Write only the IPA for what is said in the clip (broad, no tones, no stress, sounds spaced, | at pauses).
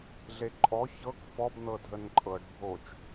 ɮ e ǃʼ ɔ ç ɤ k f ɔ b n̪ ɤ dʱ ə n ǃʼ ɤ ɖ bʱ o t͡ʃ